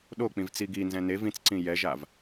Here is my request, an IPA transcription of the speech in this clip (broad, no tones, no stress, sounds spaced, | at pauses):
ɗ o k͡p ĩ v t͡s i ɡ i n z ɛ̃ n e v ĩ t͡s ǀ ĩ j ɛ ʒ a v